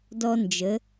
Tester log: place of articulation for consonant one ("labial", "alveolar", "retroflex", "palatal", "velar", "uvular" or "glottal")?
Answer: alveolar